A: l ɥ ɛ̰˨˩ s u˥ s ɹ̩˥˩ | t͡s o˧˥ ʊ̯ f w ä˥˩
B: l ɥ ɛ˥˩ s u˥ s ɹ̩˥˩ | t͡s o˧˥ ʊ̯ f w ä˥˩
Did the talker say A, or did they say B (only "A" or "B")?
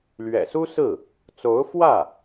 A